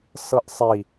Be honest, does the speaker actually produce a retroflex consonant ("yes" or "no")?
no